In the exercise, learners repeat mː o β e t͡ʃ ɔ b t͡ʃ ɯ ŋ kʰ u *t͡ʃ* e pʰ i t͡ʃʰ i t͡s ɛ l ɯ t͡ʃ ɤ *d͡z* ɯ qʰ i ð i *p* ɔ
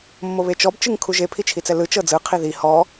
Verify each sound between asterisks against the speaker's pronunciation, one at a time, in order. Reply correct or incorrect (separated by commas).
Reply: incorrect, correct, incorrect